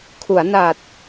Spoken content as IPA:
kʰ u˩˦ a̯ n a˨˩ t̚

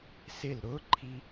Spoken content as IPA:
s ɪ l ɾ ʊ ǃʰ i

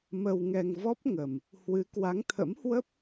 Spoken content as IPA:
m ə˧ w ŋ ɛ˧ ŋ v ɔ˦˥ p̚ ŋ ə˨˩ m | h w ɨ˨˦ k w a˨˦ ŋ t̪ʰ ə̰˧˥ m h w ə˦˥ p̚

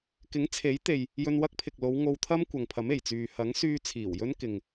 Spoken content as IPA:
k ɪ˨˥ ŋ t͡sʰ e˨˥ j t̪ e˨ j | j ɵ˧ n w ɐ˥ k̚ pʰ ɪ˨ k̚ l o˨˧ w ŋ o˧ w t̪ʰ ɐ˥ m kʷ ɐ˨ ŋ pʰ ɐ˨˥ m e˨˩ j t͡s yː˨ h ɐ˨˥ ŋ s yː˧ t͡sʰ iː˨˩ w j ɵ˥ n k ɪ˨ ŋ

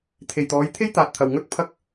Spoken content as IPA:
t̪ʰ e˨ j t̪ ɔː˨˧ j t̪ʰ e˥ j t̪ aː˨ t̚ t̪ʰ ɐ˨ w ŋ ɵ˥ t̚ pʰ ɐ˥ k̚

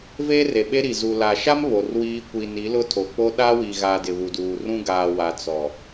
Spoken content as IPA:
v eː˦ r e˨ ɓ e˦ ɾ i˨ z u˨ l a˨ ʃ a˦ m β o˨ r w iː˦ kʷ i˨ n i˨˦ l ʊ˦ tʰ o˨ k͡p o˦ ɗ a˦ w i˨ ɣ a˨ d ɪ˨ β u˨ d uː˨ r ũ˦ ɡ aː˨ w a˨ t͡s ɔ˨

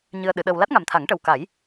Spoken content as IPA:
ɲ ɨ˧ ə̯ ɗ ɨ˨˩˦ ɗ əː˧ w l a˦˥ t̚ ŋ a˨˩ m t̪ʰ a˨˩˦ ŋ ʈ ə˨˩ w k a˨˩˦ j

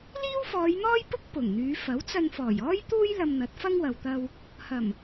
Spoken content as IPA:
l iː˥ w f ɔː˨˧ j n̪ ɔː˥ j p ʊ˥ k̚ p ʊ˨˩ ŋ n̪ yː˨˧ f ɐ˨˥ w t͡s ɐ˧ n f ɔː˨˩ j ɔː˥ j t̪ uː˥ j l ɐ˧ m n̪ ɐ˨˥ t̚ f ɐ˥ ŋ w ɐ˨ w t̪ ɐ˧ w | h ɐ˨˩ m

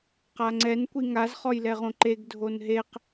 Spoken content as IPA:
q a ŋ͡ǀ ɛ n kʷ i ŋ a z χ ɔ j l ɛ ʁ õ ǃ e ɡ dʱ o n ɦ e q

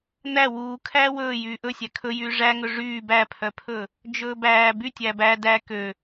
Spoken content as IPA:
n̪ æ w uː kʰ æː w ɵː j yː ʔ ɵ sʲ æ kʰ ɵ j yː ʐ æ ŋ ɵ ʐ yː b æ pʰ œ pʰ ɵ | d͡ʒ ɵː b æː b y tʲ æ b æ d æ k ø

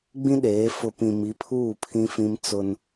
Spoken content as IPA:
ɡ͡b ĩ˦ ɗ eː˨˦ f ʊ˨ p ĩ˨ m i˨˦ pʰ uː˦˨ pʰ ĩ˦ f ĩ˦ m t͡s ʊ˦ n

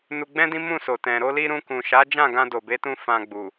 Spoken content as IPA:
n u˧ ɡ͡b ɛ̃˦ d ĩ˦ m ũ˦˨ s o˨ t ɛ̃˨ ɾ o˧ l i˧ ɾ ũ˧ k ũ˨ ʃ a˨˦ d͡ʒ ã˦˨ ɡ ã˧ d o˨ b e˨˦ t ũ˧ f ã˨ ɡ͡b u˨

